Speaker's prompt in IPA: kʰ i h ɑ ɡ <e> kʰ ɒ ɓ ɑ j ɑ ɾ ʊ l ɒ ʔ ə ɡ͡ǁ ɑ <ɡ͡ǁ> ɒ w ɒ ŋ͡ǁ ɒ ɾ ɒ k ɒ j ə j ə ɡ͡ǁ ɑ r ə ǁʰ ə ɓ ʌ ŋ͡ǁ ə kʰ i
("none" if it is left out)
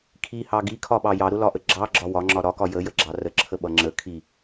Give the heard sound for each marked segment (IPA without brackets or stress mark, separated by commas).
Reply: i, ɡ͡ǁ